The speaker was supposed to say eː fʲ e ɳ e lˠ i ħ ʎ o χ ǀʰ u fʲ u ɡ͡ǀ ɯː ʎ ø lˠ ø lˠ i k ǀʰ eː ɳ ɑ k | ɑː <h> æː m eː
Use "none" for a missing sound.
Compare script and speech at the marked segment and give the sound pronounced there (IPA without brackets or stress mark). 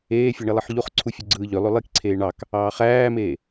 χ